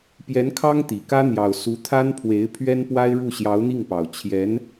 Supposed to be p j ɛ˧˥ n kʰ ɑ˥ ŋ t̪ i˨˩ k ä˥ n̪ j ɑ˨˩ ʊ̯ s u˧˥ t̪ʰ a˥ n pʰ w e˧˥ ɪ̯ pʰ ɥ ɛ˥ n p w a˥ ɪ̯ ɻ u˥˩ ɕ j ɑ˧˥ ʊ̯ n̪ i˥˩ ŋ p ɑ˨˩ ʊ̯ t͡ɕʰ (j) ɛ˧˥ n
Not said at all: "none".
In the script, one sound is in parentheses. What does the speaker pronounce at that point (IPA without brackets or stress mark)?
j